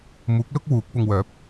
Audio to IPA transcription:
muː˨˥k̚lʊ˥k̚ wuː˨˥k̚pʊ˧ŋwœː˨˥p̚

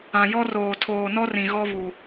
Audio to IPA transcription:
ã˨jɔ˦roː˨ tʰoː˨nɔ˦rĩ˨ ɣɔ˦ βu˨

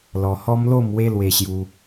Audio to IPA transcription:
lɔ˧hɔ˦mlo˥˧mwe˦ lwe˦ɕju˦

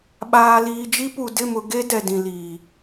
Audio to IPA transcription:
ɓaː˨liː˨d͡ʒi˦pu˨ dɪ˦˨mʊ˨ ɡe˦ dɛ˨dĩ˨liː˨

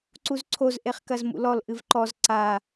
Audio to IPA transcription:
ǀuzǀʰoz ʔeχkɐzmṵlɔl ʔɨvǃɔz ǀa

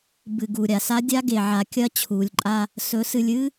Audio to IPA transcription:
bɨ˨ ɡu˨ɾʲa˨ sa˦dʲa˦ ɡe˨ʕa˨kʲɐ˦ t͡ɕʰuː˨lʲǃʼa˦ | sɵ˨˦sɨ˨lʲ ɨ˦

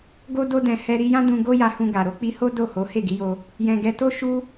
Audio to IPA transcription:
ɡo˦ do˦dɛ̃˧ hɛ˧ɾi˧jã˦dũ˧ ɡo˦ja˧hũ˧ɡa˨ ɾo˧k͡pi˧ho˦ do˦˨ho˨˦ he˦˨ɡi˨˦jo˧ | jɛ̃˨ɡɛ˧to˦ ʃu˦

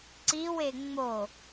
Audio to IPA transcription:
ǀiwe ŋ͡mo

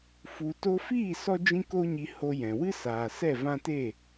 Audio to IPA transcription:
fu˨ to˧fiː˦˨ sɔ˦d͡ʒĩ˦ko˦ɲi˧ ho˧jɛ̃˨ wɨ˦saː˨ sɛ˦˨vã˦te˦˨

